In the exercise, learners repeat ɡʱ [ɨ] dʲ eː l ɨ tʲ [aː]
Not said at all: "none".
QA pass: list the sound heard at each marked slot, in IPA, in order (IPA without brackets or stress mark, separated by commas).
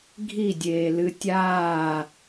i, aː